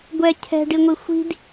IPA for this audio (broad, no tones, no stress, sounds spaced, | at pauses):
ɡʷ ɛ cʰ ɛ̤ ɖ i ŋʷ i xʷ i̤ d